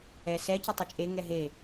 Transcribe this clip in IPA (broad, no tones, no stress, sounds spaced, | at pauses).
ɛ s ɛ c ʊ tˤ ɪ t͡ʃʼ e ŋ ɛ ɦ e